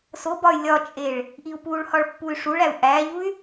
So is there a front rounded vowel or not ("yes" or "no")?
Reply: yes